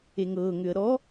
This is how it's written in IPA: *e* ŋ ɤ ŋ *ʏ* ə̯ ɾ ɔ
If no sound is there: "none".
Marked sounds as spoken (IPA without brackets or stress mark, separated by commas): e, ʏ